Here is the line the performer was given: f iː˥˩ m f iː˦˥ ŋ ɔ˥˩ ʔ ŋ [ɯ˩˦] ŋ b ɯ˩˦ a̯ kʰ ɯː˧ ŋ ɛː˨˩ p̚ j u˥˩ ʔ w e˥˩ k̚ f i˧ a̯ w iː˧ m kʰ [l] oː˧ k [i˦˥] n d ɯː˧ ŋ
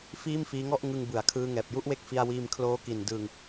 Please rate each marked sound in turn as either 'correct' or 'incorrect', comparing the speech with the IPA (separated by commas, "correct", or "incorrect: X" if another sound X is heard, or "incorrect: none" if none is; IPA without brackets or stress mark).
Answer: incorrect: ɯ˧, correct, incorrect: i˨˩